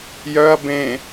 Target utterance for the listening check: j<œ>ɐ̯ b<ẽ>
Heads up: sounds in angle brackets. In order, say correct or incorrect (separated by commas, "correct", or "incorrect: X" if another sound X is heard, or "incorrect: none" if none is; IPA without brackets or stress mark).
correct, correct